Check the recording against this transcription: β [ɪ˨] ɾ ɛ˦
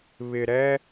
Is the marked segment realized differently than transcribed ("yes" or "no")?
no